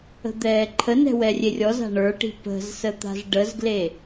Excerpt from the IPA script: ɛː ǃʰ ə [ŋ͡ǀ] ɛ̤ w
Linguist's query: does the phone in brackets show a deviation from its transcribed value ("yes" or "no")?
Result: yes